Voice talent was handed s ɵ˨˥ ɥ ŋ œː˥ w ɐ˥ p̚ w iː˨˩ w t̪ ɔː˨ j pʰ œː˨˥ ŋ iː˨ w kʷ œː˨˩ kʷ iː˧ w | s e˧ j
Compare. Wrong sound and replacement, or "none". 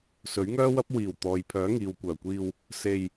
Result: none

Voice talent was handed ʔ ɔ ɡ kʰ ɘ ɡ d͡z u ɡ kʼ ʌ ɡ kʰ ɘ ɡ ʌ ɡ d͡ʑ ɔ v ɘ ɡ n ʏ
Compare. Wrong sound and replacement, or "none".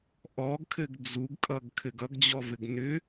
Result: none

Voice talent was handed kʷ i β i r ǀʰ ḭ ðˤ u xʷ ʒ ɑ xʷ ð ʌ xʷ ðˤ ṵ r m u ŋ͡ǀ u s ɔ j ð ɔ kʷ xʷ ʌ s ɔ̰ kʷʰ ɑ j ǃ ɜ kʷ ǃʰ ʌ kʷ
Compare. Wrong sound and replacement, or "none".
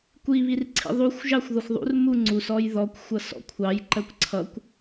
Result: ǃʰ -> ǀʰ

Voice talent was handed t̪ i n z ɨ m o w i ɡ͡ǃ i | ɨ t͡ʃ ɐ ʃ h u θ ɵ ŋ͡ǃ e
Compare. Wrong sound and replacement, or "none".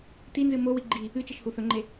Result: none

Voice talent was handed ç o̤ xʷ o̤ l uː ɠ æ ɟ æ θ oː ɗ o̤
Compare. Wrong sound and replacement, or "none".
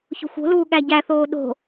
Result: none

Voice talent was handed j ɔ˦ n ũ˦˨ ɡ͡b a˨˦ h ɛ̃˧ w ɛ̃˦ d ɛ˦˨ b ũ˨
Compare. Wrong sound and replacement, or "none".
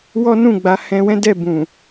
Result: j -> w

